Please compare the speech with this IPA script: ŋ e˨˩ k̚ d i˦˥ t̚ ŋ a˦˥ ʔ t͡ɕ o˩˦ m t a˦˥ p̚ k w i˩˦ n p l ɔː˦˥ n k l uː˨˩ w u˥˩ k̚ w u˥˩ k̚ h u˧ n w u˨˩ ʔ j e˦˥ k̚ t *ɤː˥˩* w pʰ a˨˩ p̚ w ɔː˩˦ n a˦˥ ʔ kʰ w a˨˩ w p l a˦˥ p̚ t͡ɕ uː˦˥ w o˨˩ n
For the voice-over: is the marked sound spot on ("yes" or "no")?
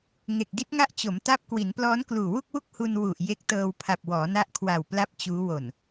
no